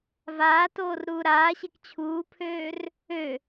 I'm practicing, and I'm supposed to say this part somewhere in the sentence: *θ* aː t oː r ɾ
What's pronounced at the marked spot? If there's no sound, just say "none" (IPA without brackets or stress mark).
v